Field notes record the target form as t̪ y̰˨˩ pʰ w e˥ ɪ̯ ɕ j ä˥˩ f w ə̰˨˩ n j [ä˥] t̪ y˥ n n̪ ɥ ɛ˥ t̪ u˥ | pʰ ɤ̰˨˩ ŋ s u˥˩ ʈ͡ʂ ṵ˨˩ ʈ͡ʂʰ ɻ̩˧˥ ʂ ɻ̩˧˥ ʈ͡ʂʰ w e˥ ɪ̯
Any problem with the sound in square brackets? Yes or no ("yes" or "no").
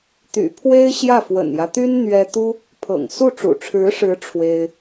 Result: yes